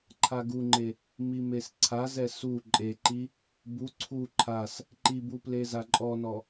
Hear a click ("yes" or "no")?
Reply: yes